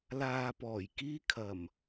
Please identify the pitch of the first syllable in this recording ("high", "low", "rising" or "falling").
low